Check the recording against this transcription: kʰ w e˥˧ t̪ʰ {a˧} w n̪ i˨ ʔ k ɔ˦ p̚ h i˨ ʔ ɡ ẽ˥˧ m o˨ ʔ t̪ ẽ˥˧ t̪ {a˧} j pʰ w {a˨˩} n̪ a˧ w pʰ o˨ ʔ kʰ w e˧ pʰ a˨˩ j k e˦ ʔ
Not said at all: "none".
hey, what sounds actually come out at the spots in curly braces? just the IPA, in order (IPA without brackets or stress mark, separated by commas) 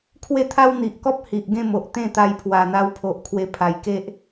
a˦, a˧, a˨˩